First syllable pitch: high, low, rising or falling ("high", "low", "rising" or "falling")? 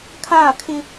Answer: falling